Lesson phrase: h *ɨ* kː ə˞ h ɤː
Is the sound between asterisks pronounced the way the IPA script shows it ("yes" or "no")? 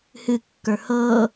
yes